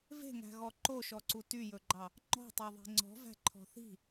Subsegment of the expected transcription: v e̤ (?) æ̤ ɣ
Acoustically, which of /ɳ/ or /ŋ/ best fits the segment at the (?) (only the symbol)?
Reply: ŋ